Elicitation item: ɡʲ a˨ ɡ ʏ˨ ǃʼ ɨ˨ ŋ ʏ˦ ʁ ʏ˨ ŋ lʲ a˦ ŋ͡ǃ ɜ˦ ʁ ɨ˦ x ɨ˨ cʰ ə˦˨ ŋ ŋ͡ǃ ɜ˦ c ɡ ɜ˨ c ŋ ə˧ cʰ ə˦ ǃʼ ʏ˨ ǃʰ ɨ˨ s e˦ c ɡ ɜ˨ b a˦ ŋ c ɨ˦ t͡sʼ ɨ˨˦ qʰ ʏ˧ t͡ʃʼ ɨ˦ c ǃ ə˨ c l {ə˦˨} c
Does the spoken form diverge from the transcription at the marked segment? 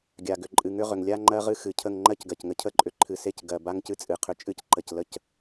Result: no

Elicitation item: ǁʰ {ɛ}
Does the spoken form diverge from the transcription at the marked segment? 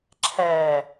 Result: yes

